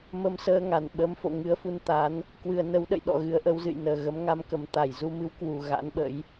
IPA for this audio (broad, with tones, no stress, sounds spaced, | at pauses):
m ə˧ m s əː˧ ŋ a˧˩ n ɓ ə˨˦ m f o̰˧˨ ŋ ɨ˨˦ ə̯ f u˧ n t̪ a˨˦ n | k w ɨ˨˩ ə̯ n ə˨˦ w ɗ ə̰˧˨ j ɗ ɔ̰˧˨ ɣ ɨ˨˦ ə̯ ʔ ə˨˦ w z ɨ̰˧˨ j n əː˨˩ ɣ ə˨˦ m ŋ a˧ m k ə˨˩ m t̪ a˧˩ j z u˧ m ɨ˨˦ w k w u˨˩ ɣ a̰˧˥ n ɓ ə̰˧˥ j